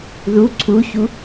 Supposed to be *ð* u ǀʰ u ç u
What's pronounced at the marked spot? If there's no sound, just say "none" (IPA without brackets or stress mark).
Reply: ð